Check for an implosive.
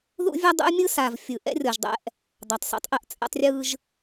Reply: absent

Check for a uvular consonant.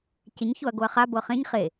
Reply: present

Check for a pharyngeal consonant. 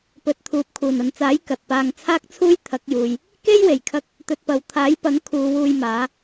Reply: absent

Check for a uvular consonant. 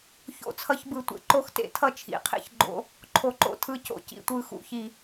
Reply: present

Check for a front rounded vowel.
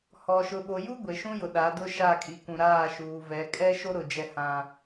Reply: absent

